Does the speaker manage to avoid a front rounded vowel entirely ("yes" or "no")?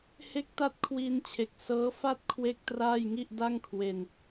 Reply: yes